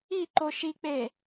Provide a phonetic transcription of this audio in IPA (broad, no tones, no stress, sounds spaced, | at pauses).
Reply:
i ǃ o ʃ i k͡p e